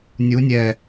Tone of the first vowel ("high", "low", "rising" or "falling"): rising